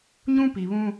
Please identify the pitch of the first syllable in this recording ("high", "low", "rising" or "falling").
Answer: high